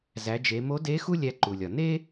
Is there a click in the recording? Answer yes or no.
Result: yes